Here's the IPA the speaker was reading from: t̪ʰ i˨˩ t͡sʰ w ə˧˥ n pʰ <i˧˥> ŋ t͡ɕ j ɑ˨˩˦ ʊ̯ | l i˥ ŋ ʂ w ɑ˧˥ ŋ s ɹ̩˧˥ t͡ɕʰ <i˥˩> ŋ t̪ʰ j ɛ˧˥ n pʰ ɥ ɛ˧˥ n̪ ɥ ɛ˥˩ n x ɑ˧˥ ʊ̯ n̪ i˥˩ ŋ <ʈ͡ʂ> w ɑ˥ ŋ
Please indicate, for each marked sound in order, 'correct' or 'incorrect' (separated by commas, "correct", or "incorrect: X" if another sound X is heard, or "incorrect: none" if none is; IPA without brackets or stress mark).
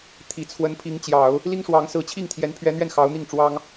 correct, correct, correct